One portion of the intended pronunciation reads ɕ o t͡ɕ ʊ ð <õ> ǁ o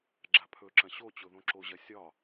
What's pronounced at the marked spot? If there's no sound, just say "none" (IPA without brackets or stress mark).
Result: õ